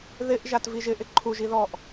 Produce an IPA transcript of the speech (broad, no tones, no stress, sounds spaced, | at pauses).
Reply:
ð ɪ ʔ ʒ a t v i ʒ ɪ ʔ ɪ ǃʰ u ʒ i ð ɔ ʔ